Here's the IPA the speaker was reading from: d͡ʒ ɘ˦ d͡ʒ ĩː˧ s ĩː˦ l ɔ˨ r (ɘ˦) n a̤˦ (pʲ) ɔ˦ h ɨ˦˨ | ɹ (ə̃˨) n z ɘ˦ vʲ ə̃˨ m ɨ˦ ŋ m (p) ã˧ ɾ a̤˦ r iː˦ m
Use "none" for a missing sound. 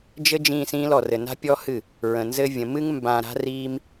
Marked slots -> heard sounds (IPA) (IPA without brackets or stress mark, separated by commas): ɘ˨, pʲ, ə̃˨, b